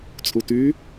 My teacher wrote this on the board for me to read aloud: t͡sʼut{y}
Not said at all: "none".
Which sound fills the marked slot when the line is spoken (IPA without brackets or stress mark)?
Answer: y